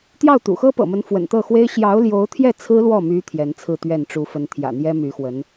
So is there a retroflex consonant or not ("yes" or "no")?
yes